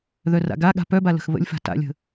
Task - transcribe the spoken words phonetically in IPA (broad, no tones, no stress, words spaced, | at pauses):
ðœra̰ɡaɠa̤ pœba lə̤xβə̰lʲfa̤ ta̰lʲə̤